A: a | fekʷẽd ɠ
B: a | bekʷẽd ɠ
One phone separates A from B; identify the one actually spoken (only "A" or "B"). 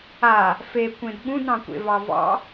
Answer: A